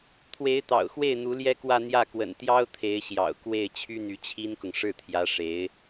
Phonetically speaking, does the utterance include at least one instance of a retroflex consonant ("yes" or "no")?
yes